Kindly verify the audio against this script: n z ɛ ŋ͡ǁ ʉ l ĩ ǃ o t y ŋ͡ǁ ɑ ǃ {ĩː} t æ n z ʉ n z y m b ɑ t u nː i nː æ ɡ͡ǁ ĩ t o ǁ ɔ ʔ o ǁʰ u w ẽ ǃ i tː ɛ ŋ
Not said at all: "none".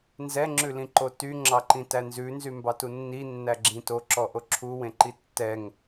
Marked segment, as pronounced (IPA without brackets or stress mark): ĩ